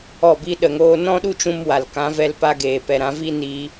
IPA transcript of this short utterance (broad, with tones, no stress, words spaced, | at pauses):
ɔ˦˨bi˦ɗə˧ŋoː˦ nɔ̃˦ɗu˦t͡ʃũ˧m wa˨lkã˨˦vɛ˧lpa˧ ɡeː˨pɛ˨ ɾã˨˦vi˦ ni˦